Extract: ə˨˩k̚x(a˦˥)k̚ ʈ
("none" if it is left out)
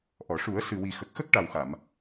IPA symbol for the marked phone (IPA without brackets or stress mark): ə˦˥